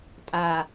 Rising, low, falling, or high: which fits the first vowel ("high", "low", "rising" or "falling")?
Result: low